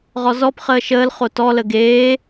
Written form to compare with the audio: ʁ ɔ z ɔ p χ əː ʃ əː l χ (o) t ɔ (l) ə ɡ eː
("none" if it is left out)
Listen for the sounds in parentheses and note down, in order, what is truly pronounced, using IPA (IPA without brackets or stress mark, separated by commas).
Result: o, l